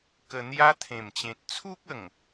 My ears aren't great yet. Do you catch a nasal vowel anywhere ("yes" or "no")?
yes